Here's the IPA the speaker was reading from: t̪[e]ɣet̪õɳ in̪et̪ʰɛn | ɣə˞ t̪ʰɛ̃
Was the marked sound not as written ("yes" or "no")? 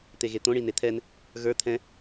no